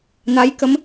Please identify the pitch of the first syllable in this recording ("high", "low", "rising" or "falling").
rising